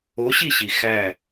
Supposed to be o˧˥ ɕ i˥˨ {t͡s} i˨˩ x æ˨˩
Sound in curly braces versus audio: incorrect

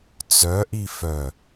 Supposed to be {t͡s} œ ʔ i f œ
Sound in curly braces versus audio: correct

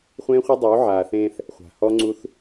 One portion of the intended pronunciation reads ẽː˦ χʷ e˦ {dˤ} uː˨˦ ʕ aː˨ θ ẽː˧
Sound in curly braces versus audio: correct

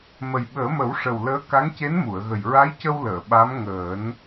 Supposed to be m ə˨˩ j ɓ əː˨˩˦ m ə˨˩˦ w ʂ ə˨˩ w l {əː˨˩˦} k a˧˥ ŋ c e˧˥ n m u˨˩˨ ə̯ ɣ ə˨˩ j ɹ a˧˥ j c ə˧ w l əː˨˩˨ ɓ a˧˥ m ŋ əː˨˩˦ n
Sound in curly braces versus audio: incorrect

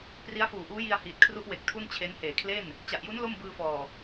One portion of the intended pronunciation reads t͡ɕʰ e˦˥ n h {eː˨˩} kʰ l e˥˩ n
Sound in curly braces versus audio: correct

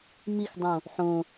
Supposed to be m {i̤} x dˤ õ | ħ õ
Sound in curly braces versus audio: incorrect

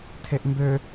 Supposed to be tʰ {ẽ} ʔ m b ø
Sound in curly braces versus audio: incorrect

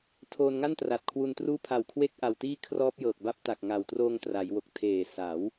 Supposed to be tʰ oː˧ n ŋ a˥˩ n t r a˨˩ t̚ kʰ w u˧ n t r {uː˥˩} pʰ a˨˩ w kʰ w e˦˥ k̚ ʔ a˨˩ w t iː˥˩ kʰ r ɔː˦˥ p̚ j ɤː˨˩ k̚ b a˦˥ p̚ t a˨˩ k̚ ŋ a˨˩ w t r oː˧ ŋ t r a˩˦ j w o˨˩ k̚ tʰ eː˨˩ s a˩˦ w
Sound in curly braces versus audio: correct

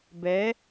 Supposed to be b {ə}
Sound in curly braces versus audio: incorrect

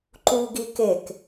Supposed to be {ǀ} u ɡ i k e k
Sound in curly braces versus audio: incorrect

